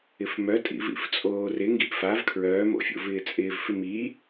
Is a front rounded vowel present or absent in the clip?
present